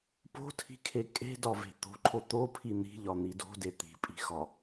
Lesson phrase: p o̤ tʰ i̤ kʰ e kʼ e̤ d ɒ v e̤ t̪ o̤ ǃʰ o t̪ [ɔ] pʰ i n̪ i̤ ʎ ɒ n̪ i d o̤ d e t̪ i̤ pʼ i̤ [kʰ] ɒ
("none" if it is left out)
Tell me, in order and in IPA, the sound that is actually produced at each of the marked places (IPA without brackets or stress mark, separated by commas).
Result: o, x